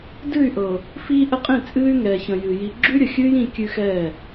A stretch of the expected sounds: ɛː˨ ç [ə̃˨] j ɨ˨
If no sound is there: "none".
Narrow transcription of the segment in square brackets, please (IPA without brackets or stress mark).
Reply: ə̃˨